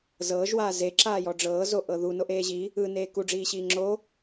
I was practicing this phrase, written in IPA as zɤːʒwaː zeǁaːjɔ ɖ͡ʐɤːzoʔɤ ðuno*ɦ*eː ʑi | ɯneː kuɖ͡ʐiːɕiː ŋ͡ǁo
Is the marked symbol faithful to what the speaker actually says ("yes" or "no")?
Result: no